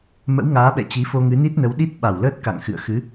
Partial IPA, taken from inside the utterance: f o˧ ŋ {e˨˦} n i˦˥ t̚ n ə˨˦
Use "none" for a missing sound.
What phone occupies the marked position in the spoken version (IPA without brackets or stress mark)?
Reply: ɨ˨˦